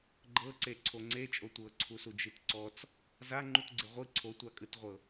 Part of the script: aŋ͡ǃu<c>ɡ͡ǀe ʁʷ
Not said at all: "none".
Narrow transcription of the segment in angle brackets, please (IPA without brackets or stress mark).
t